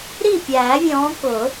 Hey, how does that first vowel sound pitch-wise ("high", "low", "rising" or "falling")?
falling